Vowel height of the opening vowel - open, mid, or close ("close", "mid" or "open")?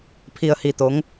close